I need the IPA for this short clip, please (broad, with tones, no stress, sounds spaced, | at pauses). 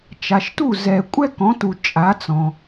t͡ʃ a˨ ʃ t u˥˨ z ɛ˨ kʷʼ ɛ˥ k ɔ̃˨˦ t u˨ t͡ʃʼ a˨˦ t͡s ɔ̃˨